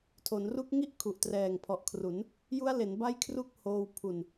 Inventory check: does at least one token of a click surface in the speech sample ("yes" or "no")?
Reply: no